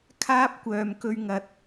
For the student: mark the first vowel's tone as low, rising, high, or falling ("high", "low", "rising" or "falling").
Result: high